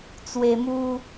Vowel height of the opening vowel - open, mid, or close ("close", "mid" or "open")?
mid